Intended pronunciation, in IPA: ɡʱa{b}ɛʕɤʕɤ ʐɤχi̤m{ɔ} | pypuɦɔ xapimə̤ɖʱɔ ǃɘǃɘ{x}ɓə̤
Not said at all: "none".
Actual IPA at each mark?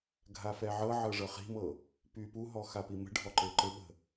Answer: f, ɤ, none

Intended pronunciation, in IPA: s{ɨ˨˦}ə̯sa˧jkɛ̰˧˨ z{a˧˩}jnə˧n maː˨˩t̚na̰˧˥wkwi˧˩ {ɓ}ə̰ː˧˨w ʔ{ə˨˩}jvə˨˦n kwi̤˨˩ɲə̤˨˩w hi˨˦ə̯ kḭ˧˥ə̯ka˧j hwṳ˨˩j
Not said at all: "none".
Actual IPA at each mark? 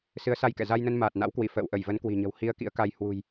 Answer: ɨ˨˦, a˧, f, ə˧˩

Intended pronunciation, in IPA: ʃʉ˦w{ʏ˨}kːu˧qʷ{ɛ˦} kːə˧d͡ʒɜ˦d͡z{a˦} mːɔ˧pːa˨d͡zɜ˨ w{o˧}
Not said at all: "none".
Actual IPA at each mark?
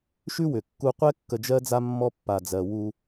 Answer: ʏ˨, ɛ˦, a˦, u˧

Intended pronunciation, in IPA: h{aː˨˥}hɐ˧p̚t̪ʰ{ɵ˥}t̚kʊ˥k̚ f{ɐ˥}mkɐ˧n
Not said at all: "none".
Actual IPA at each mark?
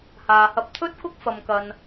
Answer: aː˨, ɵ˥, ɐ˧

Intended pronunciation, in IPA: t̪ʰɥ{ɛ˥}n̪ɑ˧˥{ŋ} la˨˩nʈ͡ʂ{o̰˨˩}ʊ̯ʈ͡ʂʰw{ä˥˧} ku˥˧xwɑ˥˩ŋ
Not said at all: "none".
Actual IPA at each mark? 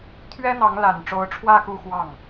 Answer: ɛ˥, ŋ, o˧˥, ä˥˧

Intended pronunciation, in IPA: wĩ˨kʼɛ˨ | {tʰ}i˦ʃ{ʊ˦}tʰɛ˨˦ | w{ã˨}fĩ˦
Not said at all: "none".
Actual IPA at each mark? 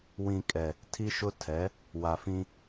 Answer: tʰ, ʊ˦, a˨

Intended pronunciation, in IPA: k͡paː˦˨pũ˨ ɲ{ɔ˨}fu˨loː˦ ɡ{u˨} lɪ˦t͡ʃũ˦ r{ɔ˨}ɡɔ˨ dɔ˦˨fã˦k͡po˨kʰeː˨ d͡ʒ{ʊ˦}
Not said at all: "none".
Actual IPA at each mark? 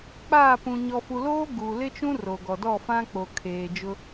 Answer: ɔ˨, u˨, o˨, ʊ˦

